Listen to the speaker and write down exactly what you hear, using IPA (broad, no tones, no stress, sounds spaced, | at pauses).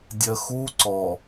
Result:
dʲ ɜ x u ǀ ɔ